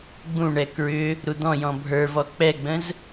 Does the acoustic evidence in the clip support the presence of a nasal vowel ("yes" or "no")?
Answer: yes